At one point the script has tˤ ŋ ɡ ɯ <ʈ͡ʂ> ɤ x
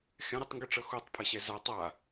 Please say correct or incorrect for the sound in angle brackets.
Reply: correct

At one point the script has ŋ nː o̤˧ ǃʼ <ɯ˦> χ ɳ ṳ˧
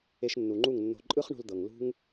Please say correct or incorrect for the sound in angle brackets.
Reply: correct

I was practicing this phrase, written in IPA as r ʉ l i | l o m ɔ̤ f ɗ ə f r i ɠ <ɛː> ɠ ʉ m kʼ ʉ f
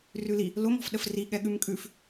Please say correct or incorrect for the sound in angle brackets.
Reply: incorrect: ɛ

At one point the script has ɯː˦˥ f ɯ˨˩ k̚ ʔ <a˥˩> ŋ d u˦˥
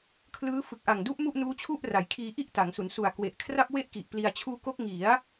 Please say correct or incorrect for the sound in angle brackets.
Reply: incorrect: a˨˩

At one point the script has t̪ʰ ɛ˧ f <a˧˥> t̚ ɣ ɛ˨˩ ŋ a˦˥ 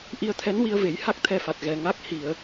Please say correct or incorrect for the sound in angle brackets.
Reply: incorrect: a˨˩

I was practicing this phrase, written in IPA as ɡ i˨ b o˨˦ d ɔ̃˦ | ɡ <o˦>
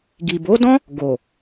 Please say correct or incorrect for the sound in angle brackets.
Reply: incorrect: o˨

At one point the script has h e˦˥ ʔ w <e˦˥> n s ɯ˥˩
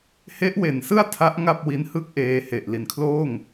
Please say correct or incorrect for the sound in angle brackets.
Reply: incorrect: e˩˦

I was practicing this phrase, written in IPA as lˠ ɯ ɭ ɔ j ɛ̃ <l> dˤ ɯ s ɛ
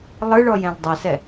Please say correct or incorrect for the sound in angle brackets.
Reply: correct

